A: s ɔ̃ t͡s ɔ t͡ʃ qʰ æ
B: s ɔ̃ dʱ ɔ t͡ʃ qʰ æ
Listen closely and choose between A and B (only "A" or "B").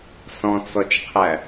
A